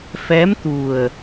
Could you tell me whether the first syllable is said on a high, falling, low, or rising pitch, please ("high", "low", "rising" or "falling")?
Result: rising